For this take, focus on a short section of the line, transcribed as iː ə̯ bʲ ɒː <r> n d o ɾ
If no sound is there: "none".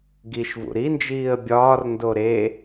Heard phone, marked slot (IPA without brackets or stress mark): r